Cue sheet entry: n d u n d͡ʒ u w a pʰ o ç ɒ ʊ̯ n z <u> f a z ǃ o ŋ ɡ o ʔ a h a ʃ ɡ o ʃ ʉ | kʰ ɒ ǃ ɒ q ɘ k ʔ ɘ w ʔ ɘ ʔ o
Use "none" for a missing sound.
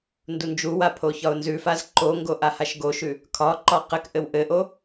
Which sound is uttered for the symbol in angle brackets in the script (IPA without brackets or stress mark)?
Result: ʉ